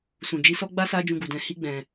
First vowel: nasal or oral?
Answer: nasal